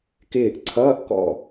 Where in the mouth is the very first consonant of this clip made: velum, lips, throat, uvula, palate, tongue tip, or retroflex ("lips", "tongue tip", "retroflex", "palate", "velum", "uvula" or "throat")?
velum